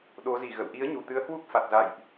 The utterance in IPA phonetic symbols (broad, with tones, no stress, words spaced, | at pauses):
ɗo˨˦zi˨˩ɣə̰˧˨w ʔi˨˦ə̯ɲu˨˩t̪ɨ˨˦ə̯ hwu˦˥k̚fa˨˩t̚za̰˧˨jʔ